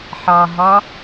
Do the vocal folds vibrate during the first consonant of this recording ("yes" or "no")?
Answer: no